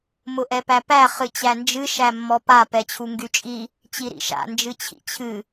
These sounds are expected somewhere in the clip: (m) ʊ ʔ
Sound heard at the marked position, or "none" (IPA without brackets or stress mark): m